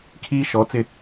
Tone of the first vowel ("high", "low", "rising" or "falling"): high